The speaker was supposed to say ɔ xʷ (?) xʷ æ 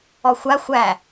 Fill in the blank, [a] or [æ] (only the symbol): a